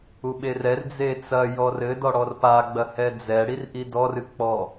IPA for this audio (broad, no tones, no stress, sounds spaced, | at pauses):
u ɓ e r ɛ r d͡z e t͡s ɐ j ɔ r ɘ d ɔ ɽ ɔ r p a ɡ͡b ɐ h ɛ d͡z ɛ ɽ i r ʔ i d ɔ r ɨ k͡p ɔ